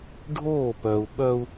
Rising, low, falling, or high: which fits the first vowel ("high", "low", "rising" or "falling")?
falling